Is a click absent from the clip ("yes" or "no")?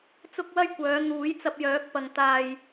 yes